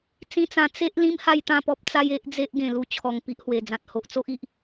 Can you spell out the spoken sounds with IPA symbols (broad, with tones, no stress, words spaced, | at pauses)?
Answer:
t͡sĩ˦t͡sã˧ t͡se˦ʔ lĩ˦mha˥˧jt̪ã˥˧pɔ˦p̚ t͡sa˦je˦ʔd͡ze˦ʔ ɡẽ˨˩lu˧t͡ɕʰɔ˨˩ŋ pi˦ʔhwe˨˩ d͡zã˨t̚ho˨ʔt͡so˦ʔ i˨ʔ